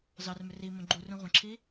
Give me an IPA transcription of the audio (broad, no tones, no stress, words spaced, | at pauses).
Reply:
zɑrmʏ rimõ ɡ͡ǃurũ ʁʷə̃ǁʰi